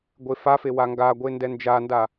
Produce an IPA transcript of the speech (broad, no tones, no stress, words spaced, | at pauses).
ɡʷefafe waŋɡaɡʷe ndɛnd͡ʒanda